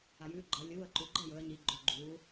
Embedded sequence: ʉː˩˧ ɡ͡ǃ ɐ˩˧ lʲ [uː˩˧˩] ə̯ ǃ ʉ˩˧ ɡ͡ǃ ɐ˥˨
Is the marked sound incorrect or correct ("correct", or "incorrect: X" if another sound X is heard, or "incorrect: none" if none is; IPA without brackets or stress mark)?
correct